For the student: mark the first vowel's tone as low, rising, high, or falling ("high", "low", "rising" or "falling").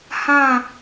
falling